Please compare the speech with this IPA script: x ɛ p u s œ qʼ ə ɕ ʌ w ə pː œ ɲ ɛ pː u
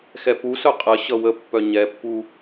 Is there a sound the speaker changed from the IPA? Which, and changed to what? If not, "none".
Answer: none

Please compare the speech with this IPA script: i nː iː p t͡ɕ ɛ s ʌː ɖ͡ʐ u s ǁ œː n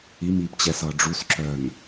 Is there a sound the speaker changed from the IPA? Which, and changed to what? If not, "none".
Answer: nː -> m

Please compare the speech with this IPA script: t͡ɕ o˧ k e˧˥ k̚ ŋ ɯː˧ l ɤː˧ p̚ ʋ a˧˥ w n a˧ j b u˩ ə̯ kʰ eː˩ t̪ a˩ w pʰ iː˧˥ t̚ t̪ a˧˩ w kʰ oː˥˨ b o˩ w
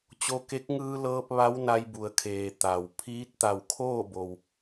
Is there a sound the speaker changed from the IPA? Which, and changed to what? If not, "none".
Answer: none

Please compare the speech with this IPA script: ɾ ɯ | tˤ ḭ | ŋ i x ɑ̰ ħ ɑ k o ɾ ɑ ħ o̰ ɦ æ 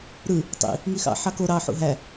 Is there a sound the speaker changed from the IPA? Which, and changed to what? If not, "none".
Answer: o̰ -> ṵ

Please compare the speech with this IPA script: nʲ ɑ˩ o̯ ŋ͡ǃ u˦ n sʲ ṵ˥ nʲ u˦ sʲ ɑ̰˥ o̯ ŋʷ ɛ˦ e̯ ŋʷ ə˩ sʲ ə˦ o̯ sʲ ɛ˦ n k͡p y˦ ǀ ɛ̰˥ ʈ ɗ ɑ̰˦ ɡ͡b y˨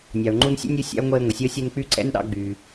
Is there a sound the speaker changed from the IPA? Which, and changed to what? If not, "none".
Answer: ʈ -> n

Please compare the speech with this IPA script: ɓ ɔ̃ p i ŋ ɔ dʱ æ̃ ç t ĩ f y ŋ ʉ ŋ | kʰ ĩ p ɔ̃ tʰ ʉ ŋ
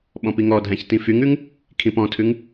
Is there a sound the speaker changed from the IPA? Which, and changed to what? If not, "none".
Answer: none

